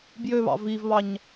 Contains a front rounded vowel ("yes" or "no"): yes